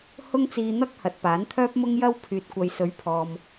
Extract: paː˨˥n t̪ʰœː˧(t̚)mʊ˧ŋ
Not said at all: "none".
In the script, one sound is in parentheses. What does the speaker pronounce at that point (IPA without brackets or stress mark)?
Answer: p̚